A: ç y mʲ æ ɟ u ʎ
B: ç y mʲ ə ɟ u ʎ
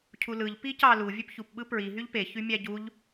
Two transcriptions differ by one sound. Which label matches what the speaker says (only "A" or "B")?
A